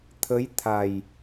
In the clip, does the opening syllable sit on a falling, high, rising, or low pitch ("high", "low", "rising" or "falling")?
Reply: rising